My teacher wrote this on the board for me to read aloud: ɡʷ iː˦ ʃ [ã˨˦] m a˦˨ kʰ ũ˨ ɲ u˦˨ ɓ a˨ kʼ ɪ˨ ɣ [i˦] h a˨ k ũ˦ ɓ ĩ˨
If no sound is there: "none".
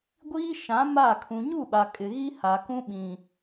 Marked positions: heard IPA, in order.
ã˨˦, i˦

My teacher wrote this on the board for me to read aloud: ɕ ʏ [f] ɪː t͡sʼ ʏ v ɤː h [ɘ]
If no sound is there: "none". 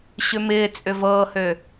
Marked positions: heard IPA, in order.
m, ø

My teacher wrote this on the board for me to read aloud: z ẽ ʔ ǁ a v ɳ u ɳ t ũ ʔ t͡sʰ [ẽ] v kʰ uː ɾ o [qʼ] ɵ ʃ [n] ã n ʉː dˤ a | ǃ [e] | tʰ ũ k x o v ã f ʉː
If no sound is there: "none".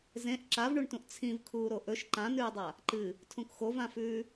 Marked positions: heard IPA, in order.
ĩ, ʔ, ǃ, ɨ

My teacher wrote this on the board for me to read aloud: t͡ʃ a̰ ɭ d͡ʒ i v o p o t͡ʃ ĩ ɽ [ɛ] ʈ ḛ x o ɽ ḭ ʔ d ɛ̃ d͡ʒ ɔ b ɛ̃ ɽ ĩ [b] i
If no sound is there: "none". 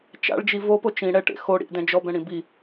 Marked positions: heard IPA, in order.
ɛ, b

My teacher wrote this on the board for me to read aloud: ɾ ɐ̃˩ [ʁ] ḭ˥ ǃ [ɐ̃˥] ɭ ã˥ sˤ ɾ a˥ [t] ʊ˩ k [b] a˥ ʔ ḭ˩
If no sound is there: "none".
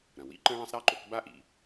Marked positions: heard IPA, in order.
w, ɐ̃˥, ǃ, b

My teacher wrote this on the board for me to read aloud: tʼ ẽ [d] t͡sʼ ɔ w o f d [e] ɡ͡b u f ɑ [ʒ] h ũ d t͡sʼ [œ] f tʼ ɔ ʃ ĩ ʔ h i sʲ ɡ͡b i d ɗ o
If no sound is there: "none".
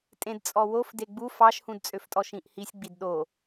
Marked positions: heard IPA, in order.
d, e, ʃ, ø

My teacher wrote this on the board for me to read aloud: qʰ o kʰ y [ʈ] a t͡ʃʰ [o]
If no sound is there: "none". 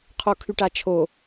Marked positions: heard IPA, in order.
ʈ, o

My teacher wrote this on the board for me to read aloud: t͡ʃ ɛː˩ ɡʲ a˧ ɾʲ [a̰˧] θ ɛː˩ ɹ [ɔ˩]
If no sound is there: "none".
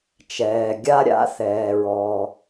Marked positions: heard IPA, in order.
a̰˧, ɔ˩

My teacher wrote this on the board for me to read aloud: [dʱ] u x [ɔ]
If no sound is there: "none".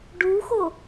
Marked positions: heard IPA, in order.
ɖ, o

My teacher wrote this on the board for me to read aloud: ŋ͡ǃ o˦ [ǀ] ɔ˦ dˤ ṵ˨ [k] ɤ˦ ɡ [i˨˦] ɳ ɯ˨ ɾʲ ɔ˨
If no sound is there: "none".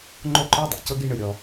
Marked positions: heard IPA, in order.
ǃ, c, i˦

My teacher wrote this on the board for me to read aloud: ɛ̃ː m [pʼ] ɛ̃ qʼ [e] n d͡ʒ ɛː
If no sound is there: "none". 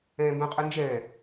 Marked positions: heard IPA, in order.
b, ɨ

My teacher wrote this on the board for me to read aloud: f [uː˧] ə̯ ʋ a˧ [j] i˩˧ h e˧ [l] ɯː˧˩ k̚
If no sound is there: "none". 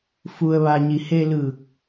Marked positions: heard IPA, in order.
u˧, ɲ, l

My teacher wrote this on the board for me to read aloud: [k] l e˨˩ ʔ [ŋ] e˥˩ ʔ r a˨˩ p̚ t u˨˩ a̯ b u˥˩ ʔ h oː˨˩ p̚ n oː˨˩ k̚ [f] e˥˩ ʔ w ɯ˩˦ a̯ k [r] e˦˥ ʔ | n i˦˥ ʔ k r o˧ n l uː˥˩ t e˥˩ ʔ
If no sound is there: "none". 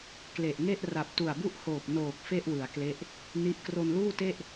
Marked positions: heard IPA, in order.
k, ŋ, f, l

